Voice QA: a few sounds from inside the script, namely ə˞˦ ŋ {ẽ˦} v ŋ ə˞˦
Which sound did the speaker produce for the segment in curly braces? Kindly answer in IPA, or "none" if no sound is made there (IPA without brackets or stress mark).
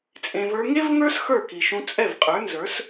e˦